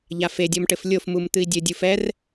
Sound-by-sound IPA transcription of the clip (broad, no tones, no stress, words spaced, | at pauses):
ʎafedʲɔmʈɘf lʲofmum t̪ɨi̯dʲɘ dʲufɛr